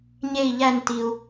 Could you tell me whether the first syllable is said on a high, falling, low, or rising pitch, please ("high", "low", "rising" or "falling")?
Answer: falling